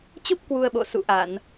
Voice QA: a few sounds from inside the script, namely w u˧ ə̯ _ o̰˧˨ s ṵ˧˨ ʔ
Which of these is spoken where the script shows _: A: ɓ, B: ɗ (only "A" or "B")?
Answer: A